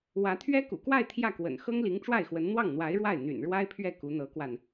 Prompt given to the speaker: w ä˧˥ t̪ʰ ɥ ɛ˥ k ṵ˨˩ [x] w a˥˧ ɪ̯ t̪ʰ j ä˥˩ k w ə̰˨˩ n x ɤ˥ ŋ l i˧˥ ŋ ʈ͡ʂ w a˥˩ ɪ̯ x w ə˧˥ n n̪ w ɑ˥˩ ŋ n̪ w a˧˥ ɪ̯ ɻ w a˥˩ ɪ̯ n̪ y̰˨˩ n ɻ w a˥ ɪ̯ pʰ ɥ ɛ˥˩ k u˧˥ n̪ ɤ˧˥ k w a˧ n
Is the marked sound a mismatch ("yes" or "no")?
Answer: yes